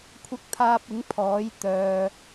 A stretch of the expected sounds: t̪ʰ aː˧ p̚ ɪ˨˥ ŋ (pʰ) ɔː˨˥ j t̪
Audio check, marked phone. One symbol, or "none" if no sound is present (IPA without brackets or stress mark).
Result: pʰ